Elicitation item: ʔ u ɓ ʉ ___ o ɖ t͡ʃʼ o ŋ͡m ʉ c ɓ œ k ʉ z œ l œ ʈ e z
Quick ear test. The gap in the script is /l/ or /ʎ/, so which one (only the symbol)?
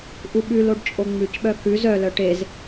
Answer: l